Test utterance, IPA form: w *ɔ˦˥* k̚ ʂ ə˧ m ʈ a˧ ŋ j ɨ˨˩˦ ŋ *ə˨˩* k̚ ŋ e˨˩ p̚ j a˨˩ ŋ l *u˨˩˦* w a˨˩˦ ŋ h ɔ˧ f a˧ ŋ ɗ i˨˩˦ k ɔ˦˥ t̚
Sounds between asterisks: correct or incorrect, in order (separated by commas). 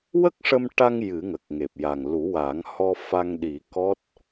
incorrect, correct, correct